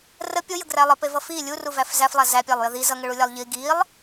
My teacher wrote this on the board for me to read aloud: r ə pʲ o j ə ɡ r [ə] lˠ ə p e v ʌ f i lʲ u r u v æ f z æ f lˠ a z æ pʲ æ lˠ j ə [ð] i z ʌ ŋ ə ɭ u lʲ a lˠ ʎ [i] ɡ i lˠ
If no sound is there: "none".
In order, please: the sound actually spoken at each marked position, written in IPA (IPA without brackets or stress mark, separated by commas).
æ, ð, i